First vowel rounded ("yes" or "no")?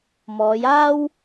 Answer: yes